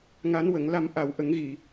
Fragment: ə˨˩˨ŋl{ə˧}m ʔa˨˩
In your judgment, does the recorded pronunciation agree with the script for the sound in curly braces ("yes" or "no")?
no